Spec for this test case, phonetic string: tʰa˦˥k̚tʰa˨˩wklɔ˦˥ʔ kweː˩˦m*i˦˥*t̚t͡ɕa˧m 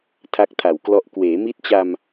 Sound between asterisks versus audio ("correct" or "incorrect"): correct